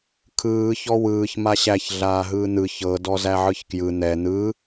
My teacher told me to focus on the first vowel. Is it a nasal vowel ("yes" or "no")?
no